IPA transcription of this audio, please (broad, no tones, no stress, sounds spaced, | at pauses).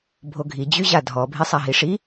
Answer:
bʱ o ɡʱ i d͡ʑ y ʑ a dʱ ɔ bʱ i sˤ a ɦ i ʂ i